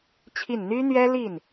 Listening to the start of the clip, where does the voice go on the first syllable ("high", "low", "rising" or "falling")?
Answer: falling